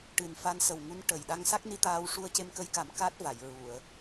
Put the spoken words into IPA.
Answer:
ʈ ɨ˨˩ n f a˧ n s ə˨˩ w ŋ u˧˥ n ʈ ə˨˩ j ɗ a˧ ŋ s a˦˥ k̚ n i˧ t̪ aː˧ w ʂ u˧ ə̯ c e˧ m k ə˧ j k a˨˩˦ m k a˦˥ t̚ v a˨˩˨ j ɹ u˨˩˨ ə̯

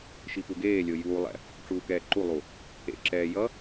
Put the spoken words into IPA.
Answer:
ʃ i p u ɡ eː lʲ o j uː lˠ ɛ̰ | ʈ͡ʂ uː k ɛː ǃ u lˠ u | ḛ ǁ ɛː j ʌ

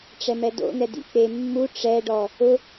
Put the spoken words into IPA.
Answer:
ʈ͡ʂ ɛ m ɛ d o̰ n ɛ d ḭ k͡p e mː u ʈ͡ʂ ɛ ɖ ɔ | ʊ

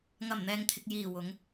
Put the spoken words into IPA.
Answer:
ŋ ɐ˨˩ m n̪ ɛː˨ ŋ t̪ʰ ɪ˨ k̚ j iː˨˩ w ʊ˨˧ ŋ

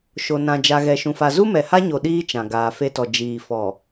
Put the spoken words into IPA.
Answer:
ʃ o˨ n ã˨ d͡ʒ a˨ ɣ ɛ˨ ʃ ũ˨ f a˨ z u˦ m ɛ˨ h a˦ ɲ o˨ ɗ iː˦ t͡ʃ ã˨ ɡ aː˨ f e˦ t ɔ˨ d͡ʒ iː˨ f ɔ˨

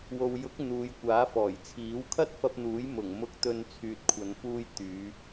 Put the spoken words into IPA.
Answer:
w o˨ w j ʊ˨˥ k̚ n̪ uː˨˧ j kʷ aː˨˥ f ɔː˨˩ j t͡sʰ iː˨˥ w kʰ ɐ˥ t̚ f ɐ˧ p̚ n̪ uː˨˥ j m ʊ˨˩ ŋ m ʊ˨˥ k̚ t̪ ɵ˨ n t͡sʰ yː˨ t̚ kʷʰ ɐ˨˧ n f uː˧ j t̪ yː˨˧

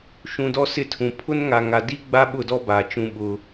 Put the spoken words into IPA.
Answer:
ʃ ũ˨ d ɔ˦ s ɪ˦ tʰ ũ˨ pʰ ʊ˦ n ŋ a˨ ŋ a˨ d i˦ ɡ͡b a˦ ɓ ʊ˦˨ d ɔ˦ b aː˨ t͡ʃ ũ˦ ɓ ʊ˦

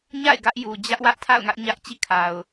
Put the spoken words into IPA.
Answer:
ɲ a̰˦˨ ɪ̯ ɡ ä˦ ʔ j u˨ d͡ʑ ä˦ ʔ w ä˦ ʔ tʰ a̰˦˨ ʊ̯ ŋ ä˦ ʔ ɲ ä˦ ʔ t͡ɕ ḭ˦˨ kʰ a˨ ʊ̯

